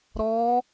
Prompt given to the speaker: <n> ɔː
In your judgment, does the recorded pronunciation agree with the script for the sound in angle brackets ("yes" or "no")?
no